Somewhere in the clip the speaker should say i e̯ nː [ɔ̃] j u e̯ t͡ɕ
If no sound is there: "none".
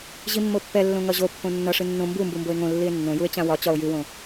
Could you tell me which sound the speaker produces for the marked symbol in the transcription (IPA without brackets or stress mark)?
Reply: õ